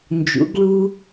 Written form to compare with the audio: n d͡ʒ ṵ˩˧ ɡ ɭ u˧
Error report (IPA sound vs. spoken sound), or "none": none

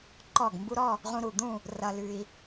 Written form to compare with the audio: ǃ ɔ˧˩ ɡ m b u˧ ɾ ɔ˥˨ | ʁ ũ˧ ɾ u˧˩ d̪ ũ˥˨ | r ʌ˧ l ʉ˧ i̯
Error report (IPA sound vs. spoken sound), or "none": none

